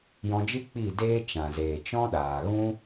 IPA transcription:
jɔ̃˧d͡ʒɨ˦ k͡pi˦˨deː˦ t͡ʃã˨zeː˨t͡ʃɔ̃˦ɗaː˨ ɣũ˦

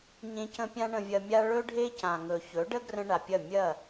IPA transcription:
ɲẽ˧cə̃˧ pʲã˦ɳə̃˧vʲɐ˧mʲa˦ ɭɵ˦ɖʱe˦ cã˨ŋɵ˨ çɵ˨˦ɖə˦ɡrə̃˧ ɳa˨pʲɐ˦˨ mʲɐ˦˨

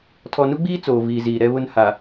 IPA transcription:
tʰɔ˨nu˦ɡ͡biː˦ t͡soː˨viː˨ziː˨ ɾɛ˦βʊ˦nha˨

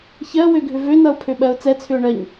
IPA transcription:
çɜwø ɡʱʏvønʌʊ̯ pʰøɓɜʊ̯t͡sɛ t͡sʰʏʊ̯ɳɜɲ

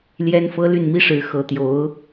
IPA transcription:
ljɛ˥nfɤ˥ ly˥˩nmi˥ʂɻ̩˧˥ xɤ˧˥t̪jo˧˥ʊ̯

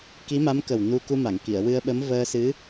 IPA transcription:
ki˧˥ma˧˥mkə˨˩w nu˧ ku˧ma˨˩˨ŋki˨˩˨ə̯ wɨ˧ə̯ɓə˧˥m vəː˧sɨ˧˥

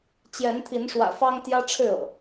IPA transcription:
t͡ɕjɛ˨˦nt̪ʰi˨˦nʂwä̰˨˩ fɑ˦ŋt̪jä˦ʈ͡ʂʰɻ̩˥˨ɤ̰˨˩

